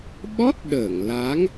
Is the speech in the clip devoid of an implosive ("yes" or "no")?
no